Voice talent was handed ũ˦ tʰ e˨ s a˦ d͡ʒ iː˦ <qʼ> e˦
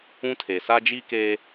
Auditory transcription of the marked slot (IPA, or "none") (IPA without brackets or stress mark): k